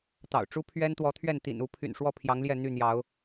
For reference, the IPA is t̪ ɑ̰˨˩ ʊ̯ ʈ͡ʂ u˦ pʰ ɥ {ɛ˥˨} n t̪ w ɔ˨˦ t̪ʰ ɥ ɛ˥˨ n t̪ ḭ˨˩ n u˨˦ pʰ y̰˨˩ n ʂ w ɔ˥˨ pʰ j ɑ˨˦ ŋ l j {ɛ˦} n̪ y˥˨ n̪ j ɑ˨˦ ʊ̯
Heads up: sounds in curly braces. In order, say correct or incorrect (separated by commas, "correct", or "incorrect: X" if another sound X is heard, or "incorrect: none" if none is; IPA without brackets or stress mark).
incorrect: ɛ˦, incorrect: ɛ˥˨